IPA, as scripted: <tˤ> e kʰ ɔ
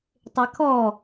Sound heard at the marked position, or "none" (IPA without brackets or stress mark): tˤ